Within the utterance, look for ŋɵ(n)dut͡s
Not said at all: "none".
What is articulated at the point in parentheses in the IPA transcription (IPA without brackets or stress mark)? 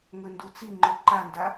n